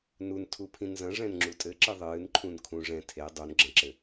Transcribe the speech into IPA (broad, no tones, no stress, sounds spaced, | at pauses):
n u n tʰ u pʰ ĩ n z ɐ̃ ʐ ɛ̃ n ŋ͡ǁ u tʼ ɘ ǁ ɨ ðˤ ɨː n ǃʰ ũ n kʰ ũ ʐ ɛ̃ tʰ e dˤ u n ɡ͡ǁ ɐ̃ ǁ ɘ